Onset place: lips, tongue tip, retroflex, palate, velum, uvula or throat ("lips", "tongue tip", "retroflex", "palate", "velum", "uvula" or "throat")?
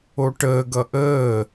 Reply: retroflex